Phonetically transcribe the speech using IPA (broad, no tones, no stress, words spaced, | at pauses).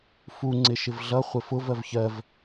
fuŋ͡ǀɪ ʃɪvɮʌ χʷɪfʊv ɜvçɜv